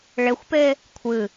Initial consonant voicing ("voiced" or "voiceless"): voiced